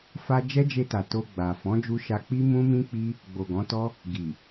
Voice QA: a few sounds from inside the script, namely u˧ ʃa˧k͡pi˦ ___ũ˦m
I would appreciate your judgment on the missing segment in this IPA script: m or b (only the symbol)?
m